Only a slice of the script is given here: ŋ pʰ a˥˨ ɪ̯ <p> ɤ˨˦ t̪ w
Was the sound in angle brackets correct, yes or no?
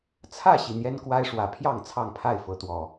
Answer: no